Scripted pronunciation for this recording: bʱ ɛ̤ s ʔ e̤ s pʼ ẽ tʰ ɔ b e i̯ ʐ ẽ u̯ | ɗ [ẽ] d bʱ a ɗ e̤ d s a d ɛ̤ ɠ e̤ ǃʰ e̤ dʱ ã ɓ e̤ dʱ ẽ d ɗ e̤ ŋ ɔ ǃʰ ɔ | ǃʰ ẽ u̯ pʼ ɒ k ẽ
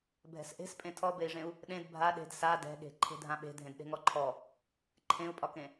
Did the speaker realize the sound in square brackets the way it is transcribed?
yes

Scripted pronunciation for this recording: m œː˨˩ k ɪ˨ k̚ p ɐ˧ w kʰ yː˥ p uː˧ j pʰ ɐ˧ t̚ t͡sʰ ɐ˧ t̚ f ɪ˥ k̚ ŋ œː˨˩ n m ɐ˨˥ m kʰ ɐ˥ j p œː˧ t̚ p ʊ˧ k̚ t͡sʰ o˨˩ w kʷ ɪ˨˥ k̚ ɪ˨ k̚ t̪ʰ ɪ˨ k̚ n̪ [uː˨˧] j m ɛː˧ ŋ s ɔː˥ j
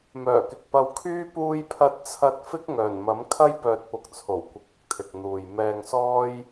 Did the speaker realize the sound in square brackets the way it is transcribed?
no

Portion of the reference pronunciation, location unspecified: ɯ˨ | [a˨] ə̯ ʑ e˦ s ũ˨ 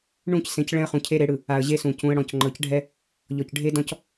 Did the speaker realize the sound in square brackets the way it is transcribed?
yes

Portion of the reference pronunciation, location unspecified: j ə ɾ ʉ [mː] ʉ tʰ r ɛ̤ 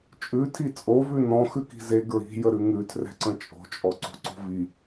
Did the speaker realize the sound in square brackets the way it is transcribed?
no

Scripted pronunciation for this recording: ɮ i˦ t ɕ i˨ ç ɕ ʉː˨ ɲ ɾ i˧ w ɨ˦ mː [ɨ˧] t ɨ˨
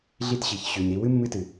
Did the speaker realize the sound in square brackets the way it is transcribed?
no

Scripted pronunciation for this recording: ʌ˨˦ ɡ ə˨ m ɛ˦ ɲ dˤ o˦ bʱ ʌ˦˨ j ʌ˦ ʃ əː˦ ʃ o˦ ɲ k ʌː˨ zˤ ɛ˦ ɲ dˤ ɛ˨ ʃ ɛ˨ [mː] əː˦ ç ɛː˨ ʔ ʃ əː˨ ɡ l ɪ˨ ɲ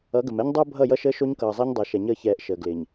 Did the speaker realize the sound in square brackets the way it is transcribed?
no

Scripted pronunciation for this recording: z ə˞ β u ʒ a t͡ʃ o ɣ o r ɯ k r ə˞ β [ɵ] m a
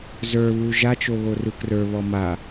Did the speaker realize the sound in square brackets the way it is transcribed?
no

